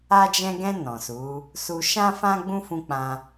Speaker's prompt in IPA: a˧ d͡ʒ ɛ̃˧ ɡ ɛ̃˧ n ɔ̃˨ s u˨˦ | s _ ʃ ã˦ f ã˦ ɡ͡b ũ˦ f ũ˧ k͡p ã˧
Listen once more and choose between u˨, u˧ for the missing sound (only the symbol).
u˧